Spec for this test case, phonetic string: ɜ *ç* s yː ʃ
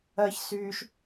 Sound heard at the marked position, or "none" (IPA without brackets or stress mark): ç